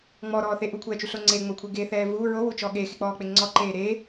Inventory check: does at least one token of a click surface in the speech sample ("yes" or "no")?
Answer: yes